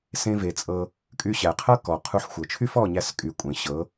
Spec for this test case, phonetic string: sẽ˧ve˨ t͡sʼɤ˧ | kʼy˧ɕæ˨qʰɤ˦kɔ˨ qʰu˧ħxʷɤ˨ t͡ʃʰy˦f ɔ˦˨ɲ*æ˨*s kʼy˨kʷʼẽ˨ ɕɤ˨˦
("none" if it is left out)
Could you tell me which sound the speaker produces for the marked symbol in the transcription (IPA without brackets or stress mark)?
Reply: æ˧